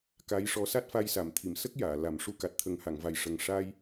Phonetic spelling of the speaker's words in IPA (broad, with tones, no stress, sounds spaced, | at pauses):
k a˧˥ j ʂ ɔ˧˥ s a˦˥ t̚ f a˧ j s a˨˩˨ m t̪ʰ i˨˩˨ m s ə˦˥ k̚ j aː˨˩˨ l a˨˩˦ m ʂ u˧ k a˨˩ t̚ t̪ʰ ə˨˩˦ ŋ h a˨˩˨ ŋ v a˨˩ j ʂ ə˨˩ ŋ ʂ a˧ j